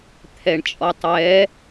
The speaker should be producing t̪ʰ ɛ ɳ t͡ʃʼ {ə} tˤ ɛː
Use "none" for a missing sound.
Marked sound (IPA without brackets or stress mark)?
ɔ